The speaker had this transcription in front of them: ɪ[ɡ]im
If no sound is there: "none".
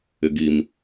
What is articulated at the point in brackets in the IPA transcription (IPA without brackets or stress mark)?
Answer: ɡ